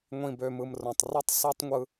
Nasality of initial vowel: nasal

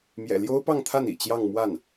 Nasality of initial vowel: oral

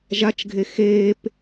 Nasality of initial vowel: oral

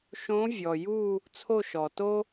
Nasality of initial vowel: nasal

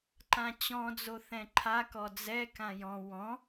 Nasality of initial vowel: nasal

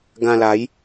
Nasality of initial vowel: nasal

